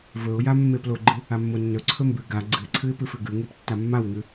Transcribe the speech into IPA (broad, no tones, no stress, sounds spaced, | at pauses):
v ɵ ʊ̯ j a mː e p l o ɡ͡ǃ ɨ | a mː o nː ɵ ǀʰ ɵ m b ʉ ɡ a ɡ͡ǀ ɨ ɪ̯ ǀʰ ɨ ɪ̯ p ɨ f ʉ ɡ ʉ ŋ e p tː a mː a w ŋ ʉ